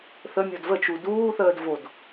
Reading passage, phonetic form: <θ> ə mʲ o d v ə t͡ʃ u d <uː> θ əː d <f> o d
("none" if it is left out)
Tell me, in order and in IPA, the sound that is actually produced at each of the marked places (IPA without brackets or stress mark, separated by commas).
θ, uː, v